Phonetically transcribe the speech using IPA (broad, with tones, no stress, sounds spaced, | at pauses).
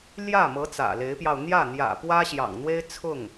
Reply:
l j ä˥˩ m ɤ˧˥ t͡s ä̰˨˩ l e˧˥ ɪ̯ p j ɑ˧ ʊ̯ n̪ j ä˥˩ n̪ j ä̰˨˩ p w ä˥ ɕ j ɑ̰˨˩ ŋ n̪ w e˥ ɪ̯ t͡sʰ ʊ˥˩ ŋ